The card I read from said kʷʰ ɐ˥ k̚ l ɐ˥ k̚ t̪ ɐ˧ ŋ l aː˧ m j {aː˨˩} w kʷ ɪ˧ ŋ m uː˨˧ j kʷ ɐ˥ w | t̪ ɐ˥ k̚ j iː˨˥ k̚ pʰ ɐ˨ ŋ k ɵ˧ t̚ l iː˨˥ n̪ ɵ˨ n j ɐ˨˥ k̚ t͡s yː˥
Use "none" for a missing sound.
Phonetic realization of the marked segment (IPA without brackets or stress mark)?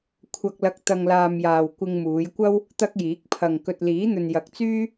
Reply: aː˨